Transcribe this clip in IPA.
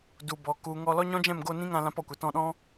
d u˨ b ɔ˨ k u˨ ŋ ɔ˧ l ɔ˦ ɲ ɔ̃˦ d͡ʒ ɛ̃˦˨ m ɡ o˧ n ĩ˦ ŋ ã˧ l ã˦ p ɔ˨˦ kʷ ɛ˨ t ɔ̃˧ ɗ ɔ̃˦

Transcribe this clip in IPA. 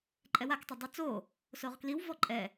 ǃʼ ɛ w a k tˤ œ dˤ y t͡s o | s o ʁ k l i w v ɔ ǃʼ ɛ

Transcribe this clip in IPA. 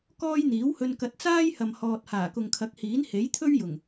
k ɔː˥ j n̪ iː˨˥ w h ɵ˧ n k ɐ˨˥ t̚ t͡s aː˥ j h ɐ˨ m h ɔː˨ t̚ h aː˨˩ k ʊ˨ ŋ kʰ ɐ˨˥ k̚ h iː˨˥ n h e˨˥ j t̪ʰ ɵ˥ ɥ j ʊ˨˩ ŋ

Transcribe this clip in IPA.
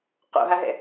q o̰ ɦ a ɦ ɛ̰

